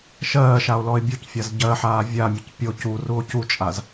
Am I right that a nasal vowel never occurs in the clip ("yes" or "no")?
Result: yes